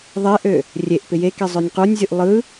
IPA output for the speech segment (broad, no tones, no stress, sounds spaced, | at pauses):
ðˤ e ʔ ø | rʲ e ʔ p ɪ j e k e zˤ ø nʲ q u nʲ zʲ u ʔ lˠ ɯ